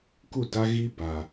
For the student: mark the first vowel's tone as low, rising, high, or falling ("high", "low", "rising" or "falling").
falling